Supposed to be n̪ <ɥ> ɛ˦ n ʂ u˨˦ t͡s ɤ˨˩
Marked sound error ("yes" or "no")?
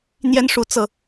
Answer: yes